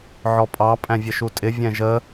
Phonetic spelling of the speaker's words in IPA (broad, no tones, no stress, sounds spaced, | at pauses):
ʕ ɔ pʼ ɑ pʼ æ̃ vʲ ə ʃ u tʼ ɪ vʲ ɛ̃ ʒ ə